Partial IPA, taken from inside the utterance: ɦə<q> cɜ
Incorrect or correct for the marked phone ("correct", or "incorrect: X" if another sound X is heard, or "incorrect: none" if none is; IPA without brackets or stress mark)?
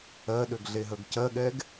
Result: incorrect: ɡ